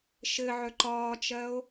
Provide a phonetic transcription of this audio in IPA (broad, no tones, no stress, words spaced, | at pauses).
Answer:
ʃɘʕœ ǃɒːt͡ʃɜo̯